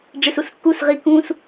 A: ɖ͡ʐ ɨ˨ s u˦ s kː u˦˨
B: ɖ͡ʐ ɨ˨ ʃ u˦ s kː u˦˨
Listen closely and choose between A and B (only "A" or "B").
A